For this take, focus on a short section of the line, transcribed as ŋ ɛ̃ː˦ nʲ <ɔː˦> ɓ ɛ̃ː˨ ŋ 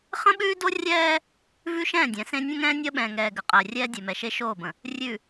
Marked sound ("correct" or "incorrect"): incorrect